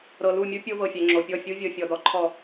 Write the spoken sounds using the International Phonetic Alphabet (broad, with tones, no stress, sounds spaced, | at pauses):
ɾ ɤ˨ l u˦˨ mʲ u˦ pʲ o˦ v ɤ˨ fʲ ɛ˨ ŋ͡ǁ o˨ pʲ ɔ˦˨ fʲ u˦ vʲ ɤ˨ fʲ ɔ˨ d ɔ˨ ǃʰ ɔ˨